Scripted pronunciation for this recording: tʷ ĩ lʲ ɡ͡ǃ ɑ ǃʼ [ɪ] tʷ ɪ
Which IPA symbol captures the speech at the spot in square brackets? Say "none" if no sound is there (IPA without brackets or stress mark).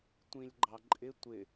ɪ